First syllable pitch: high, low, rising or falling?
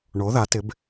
rising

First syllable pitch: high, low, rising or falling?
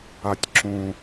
low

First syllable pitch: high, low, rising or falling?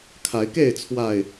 rising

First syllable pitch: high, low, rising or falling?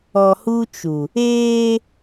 low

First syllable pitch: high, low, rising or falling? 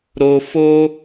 low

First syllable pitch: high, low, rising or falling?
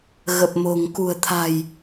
low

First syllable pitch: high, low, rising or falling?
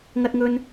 high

